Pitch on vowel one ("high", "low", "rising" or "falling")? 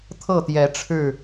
falling